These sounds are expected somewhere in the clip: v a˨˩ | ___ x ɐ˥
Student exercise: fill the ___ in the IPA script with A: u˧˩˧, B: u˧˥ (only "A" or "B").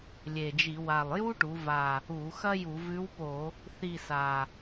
A